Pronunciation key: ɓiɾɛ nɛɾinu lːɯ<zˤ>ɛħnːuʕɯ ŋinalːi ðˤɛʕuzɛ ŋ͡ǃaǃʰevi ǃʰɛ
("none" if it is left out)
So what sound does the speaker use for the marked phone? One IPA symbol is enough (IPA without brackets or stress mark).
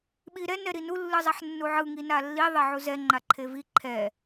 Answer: zˤ